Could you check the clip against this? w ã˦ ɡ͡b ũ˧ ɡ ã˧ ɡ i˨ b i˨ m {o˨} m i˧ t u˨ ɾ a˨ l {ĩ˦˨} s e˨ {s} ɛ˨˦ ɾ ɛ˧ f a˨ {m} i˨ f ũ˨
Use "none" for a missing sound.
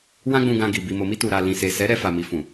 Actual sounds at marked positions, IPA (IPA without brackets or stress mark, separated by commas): o˨, ĩ˨, s, m